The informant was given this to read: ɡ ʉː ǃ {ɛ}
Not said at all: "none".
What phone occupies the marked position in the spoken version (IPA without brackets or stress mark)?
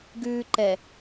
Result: ɛ